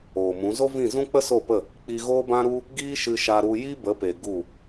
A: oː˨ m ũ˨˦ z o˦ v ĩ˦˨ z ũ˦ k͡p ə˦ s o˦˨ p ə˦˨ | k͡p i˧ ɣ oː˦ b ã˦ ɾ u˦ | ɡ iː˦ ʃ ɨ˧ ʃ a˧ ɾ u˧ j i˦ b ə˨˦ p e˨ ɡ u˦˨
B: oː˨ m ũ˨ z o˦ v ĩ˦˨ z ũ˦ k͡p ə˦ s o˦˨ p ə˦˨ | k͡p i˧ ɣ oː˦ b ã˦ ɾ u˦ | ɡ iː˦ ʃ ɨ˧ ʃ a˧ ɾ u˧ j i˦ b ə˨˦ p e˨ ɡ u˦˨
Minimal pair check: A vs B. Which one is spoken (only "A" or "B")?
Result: A